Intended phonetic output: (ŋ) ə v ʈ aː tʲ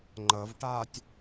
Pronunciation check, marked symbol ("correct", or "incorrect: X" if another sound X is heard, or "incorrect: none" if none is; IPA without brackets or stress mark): incorrect: ŋ͡ǃ